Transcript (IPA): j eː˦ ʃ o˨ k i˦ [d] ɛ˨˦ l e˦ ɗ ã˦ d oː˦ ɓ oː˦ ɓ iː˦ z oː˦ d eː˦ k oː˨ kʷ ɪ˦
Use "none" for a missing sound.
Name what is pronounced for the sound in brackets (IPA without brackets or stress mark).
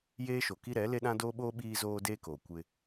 ɾ